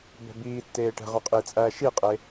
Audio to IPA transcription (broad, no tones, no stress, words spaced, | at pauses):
bɛ̤biːtːeː ʈɛ̤ʁœ qʼiːt͡sʼæːʃiqʼe